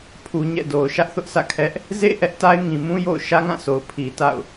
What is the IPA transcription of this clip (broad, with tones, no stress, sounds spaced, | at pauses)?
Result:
pʰ u˨ ɲ ɛ̰˦˨ d o˨ ʊ̯ ʃ ä˦ ʔ θ ʊ˦ ʔ s ä̰˦˨ kʰ ɛ˦ ʔ | z ḛ˦˨ ʔ ɛ˦ ʔ t a˦ ɪ̯ ŋ ĩ˨ m ũ˦ j o̰˦˨ ʊ̯ ʃ ä˦ ŋ ã˦˨ s o˨ ʊ̯ pʰ i˨ t a̰˦˨ ʊ̯